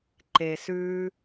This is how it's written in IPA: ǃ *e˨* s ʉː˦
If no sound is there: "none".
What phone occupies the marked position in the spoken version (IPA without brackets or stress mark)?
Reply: e˨